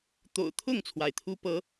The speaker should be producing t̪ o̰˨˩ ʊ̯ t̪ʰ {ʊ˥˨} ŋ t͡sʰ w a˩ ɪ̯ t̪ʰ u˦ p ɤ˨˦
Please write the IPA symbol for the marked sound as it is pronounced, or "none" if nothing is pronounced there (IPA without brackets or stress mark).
ʊ˥˨